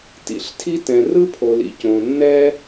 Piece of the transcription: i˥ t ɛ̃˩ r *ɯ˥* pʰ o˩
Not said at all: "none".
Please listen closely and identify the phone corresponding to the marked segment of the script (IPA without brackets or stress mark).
ɯ˥